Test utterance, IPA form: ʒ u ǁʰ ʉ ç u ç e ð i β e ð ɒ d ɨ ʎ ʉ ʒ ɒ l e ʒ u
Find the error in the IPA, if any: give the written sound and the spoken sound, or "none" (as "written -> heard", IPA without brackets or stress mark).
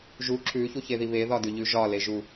ɨ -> ʉ